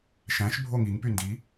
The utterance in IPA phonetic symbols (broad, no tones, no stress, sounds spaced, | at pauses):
ʃ æ̃ ʃ bʱ o ŋ i ŋ p y n d i